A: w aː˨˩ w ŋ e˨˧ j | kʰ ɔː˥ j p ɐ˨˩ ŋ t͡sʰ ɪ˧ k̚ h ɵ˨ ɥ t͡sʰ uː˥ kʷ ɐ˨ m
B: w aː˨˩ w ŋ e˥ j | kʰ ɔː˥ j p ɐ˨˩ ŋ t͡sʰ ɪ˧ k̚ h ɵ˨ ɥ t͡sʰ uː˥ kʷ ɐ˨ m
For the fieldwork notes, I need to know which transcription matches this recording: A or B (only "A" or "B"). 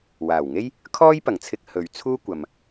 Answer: B